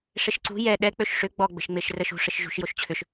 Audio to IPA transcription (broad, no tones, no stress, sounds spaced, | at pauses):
ʂ e ʃ ǀ ṳ j ɛ ɗ ɛ k͡p ø ʃ ʂ ʏ ɡ͡b ɔ ɡ͡b ə̤ ʃ ŋ͡m e ʃ r ə ʃ ṳ ʂ ə ʃ ʒ ṳ ʃ j o ʃ t͡ɕʰ ʏ ʃ